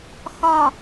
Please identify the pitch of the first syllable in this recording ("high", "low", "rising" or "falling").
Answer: low